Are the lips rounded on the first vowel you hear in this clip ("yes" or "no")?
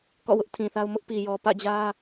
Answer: yes